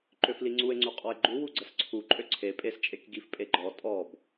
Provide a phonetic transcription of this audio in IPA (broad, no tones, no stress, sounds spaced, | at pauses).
ǃ ø f l i ŋ͡ǀ u e̯ ŋ͡ǀ u qʼ ɔ e̯ ɡ͡ǃ u w u ɡ͡ǀ ə s ǀʰ u ǃʼ ø ǀʰ e pʼ e s t͡ʃʼ e k ɡ i f pʼ e ɡ͡ǃ ɔ tʼ ɔ b